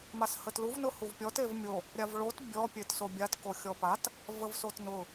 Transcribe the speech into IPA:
m a s h ə t l u v n ʊ h u v pʲ ɔ t e v mʲ o | ɾʲ a v ɭ o t bʲ ɔ pʲ e t s o bʲ a t k o xʲ ɔ p a t | v ə v s o t n ʊ

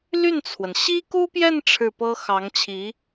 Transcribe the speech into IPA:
l y˥˩ n t͡sʰ w ə˩ n ɕ i˥ k u˥ p j ɛ˥˧ n ʈ͡ʂʰ ɻ̩˥˩ p ɤ˥ x ɑ˧˥ ŋ t͡ɕʰ i˧˥

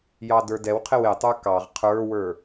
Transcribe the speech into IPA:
j ɑ d ə˞ d ɛ w qʰ ɪ w ɪ tˤ ə˞ k ɑ ʁ qʰ ə˞ w ə˞

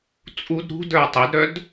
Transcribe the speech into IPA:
t͡sʼ u d ɾ ṳ d ə˞ tˤ e d ɾ œ d

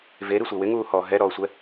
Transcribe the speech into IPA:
v e ɾ i sʷ e w ɪ ŋ uː h ɔː ɦ ɛ ɾ ɔː sʷ ɛ

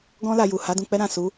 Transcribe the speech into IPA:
ɡ ɔ̃˦ l a˧ j u˨ h a˨˦ d ũ˧ k͡p ɛ˦ ɾ ã˦˨ s u˨˦

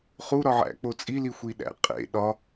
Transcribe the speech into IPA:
χ u ɾ ɒ ʕ æ̰ k͡p o t͡sʼ i l i xʷ i ɗ æ̰ qʼ ḛ ɗ ɒ

